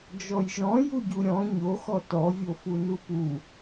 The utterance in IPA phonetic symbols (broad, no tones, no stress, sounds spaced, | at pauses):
d͡ʒ ɔ j ʒ ɔ̃ j u ɟ u ɾʲ ɔ̃ ɲ o x ɔ t ɔ vʲ o f u n u p u